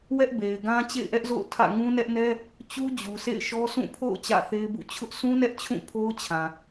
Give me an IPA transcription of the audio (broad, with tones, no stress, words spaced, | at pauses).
wɛ˦ʔbe˨ɪ̯ɡã˦ t͡ɕḛ˦˨ɪ̯ʔɛ˦ʔzo̰˦˨ʊ̯ tʰä̰˦˨ ŋũ˦nɛ˦ʔnɛ˦ | t͡ɕu˦d͡ʑu˨sʰḛ˦˨ɪ̯ʃɔ˦ sʰũ˦˨pʰo̰˦˨ʊ̯ t͡ɕä̰˦˨θe˦ɪ̯bṵ˦˨ t͡ɕʰʊ˦ʔ sʰũ˦nɛ˦ʔt͡ɕʰũ˦˨ pʰo˦ʊ̯t͡ɕʰã˨